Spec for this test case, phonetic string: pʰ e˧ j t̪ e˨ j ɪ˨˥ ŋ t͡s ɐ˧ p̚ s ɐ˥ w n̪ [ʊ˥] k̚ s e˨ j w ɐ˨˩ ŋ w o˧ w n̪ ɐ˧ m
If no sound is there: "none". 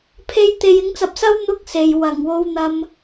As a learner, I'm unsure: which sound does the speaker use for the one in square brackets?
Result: ʊ˥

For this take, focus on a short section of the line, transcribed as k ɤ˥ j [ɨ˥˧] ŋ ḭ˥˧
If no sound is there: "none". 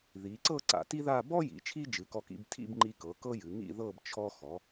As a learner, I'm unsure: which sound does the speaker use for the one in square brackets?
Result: ɨ˩˧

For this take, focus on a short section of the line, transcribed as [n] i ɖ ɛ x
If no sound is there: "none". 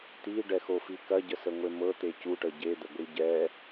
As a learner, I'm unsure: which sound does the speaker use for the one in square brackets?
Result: t̪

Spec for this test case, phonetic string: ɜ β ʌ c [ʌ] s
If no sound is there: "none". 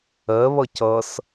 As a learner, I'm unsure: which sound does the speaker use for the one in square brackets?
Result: ʌ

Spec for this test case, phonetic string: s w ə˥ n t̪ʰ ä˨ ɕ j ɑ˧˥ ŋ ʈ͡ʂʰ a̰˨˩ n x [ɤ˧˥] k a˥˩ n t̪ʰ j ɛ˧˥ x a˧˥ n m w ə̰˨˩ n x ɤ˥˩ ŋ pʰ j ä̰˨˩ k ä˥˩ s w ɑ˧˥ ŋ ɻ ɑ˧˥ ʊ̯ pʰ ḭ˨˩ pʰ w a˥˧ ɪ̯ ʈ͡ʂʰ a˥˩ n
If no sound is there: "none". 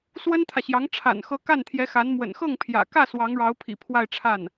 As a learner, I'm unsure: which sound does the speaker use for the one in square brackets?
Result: ɤ˧˥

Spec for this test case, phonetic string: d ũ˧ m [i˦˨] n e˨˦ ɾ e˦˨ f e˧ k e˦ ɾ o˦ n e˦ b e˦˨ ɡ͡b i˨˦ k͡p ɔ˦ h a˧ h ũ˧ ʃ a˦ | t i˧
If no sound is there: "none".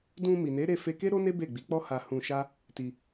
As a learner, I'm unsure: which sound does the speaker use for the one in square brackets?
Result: i˨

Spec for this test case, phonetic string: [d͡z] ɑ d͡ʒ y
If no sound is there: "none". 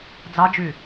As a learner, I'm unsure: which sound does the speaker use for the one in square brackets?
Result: d͡z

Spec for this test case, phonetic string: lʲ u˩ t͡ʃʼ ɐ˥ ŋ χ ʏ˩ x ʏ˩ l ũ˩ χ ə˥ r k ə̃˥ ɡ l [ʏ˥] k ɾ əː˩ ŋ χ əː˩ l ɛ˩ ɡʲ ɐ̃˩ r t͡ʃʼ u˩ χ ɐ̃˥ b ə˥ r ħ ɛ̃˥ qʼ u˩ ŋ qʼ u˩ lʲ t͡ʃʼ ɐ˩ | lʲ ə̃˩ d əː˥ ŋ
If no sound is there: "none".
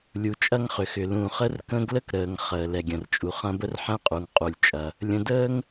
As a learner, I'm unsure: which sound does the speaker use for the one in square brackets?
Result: ə˥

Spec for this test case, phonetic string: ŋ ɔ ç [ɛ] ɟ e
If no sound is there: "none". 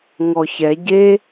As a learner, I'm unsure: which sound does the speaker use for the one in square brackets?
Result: ɛ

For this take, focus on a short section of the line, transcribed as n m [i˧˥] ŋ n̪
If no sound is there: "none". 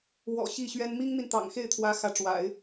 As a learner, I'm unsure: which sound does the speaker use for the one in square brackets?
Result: i˥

